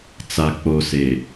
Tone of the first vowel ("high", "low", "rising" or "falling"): low